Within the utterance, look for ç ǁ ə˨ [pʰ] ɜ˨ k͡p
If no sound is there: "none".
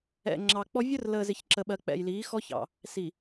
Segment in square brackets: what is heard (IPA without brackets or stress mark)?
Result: ɓ